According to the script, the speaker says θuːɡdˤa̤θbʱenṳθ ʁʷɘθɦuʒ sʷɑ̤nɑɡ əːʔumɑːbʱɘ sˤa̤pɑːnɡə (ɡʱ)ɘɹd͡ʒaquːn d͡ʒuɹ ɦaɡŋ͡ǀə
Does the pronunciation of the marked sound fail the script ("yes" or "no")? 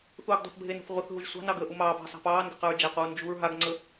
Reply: yes